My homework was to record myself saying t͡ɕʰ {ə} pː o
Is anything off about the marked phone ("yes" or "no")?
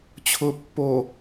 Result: yes